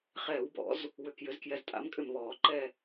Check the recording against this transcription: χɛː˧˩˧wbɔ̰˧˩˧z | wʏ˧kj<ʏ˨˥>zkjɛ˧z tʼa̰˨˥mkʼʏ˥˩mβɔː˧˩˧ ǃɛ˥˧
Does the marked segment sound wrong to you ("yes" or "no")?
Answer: no